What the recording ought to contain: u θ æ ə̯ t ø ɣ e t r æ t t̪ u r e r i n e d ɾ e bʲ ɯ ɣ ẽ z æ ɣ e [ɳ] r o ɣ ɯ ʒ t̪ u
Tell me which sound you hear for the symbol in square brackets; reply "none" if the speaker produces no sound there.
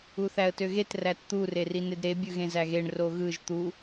ɳ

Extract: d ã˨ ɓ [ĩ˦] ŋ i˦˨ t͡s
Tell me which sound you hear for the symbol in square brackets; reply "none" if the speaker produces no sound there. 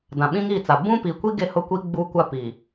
ĩ˦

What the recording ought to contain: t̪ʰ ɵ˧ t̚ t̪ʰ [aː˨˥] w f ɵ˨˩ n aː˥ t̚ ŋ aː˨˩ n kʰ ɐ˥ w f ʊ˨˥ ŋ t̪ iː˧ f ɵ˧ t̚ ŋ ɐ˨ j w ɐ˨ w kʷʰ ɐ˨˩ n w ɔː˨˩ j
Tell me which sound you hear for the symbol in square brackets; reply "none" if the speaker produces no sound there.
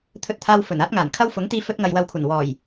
aː˧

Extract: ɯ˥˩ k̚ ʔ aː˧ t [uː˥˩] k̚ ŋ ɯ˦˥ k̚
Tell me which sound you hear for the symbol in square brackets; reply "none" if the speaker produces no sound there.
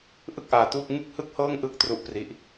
uː˥˩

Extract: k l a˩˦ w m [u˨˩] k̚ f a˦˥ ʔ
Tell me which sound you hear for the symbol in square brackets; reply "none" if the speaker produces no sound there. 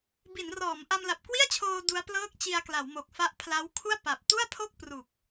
o˨˩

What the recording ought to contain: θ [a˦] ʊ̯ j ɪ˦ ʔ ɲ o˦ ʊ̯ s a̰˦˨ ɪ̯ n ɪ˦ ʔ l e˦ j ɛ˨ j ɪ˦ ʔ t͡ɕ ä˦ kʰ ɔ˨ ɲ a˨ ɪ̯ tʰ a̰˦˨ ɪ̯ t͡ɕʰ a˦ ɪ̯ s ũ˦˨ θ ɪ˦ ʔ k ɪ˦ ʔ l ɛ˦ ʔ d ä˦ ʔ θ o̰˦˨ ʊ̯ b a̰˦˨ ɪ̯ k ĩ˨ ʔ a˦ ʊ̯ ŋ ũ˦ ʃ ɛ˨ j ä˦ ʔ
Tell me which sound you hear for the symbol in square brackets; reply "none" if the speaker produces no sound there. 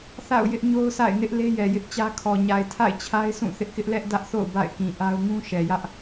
a̰˦˨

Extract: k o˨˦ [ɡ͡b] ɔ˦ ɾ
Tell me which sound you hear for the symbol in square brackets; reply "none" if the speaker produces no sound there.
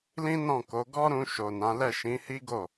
ɡ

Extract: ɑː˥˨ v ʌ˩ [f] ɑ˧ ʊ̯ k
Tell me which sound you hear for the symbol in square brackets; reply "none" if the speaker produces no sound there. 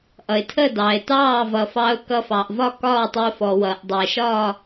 f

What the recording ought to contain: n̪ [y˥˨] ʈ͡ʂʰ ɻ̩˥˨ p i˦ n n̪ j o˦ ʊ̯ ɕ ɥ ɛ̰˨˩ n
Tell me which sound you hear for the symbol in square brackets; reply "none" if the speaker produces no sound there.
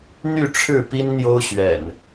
y˥˨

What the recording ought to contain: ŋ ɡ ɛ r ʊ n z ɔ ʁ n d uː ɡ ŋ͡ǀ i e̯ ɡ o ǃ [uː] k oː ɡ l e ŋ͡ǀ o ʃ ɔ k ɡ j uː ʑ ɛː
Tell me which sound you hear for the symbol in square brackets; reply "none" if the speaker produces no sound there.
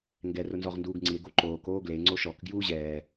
oː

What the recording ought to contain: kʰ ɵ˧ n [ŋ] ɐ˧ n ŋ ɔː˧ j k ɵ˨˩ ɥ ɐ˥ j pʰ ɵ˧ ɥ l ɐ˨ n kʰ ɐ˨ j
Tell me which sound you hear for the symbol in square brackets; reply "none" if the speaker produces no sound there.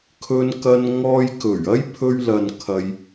k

